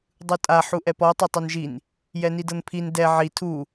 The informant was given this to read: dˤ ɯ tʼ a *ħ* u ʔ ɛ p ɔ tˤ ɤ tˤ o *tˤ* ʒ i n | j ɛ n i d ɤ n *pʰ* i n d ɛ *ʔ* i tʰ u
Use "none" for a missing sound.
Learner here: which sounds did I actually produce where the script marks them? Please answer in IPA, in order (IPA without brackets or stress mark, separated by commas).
ħ, n, pʰ, ʕ